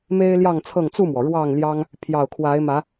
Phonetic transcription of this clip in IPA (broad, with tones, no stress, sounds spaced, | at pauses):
m e˦ ɪ̯ l j ɑ˥˨ ŋ t͡sʰ ɤ˥˨ ŋ t͡s u˥˨ m w ɔ˩ ɻ w ɑ˥˨ ŋ l j ɑ˦ ŋ | pʰ j ɑ˨˩ ʊ̯ kʰ w a˨˦ ɪ̯ m ä˨˦